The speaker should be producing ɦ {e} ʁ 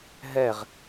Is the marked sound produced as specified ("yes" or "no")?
no